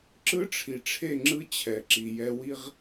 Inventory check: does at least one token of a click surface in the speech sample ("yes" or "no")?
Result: yes